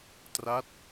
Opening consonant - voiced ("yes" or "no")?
no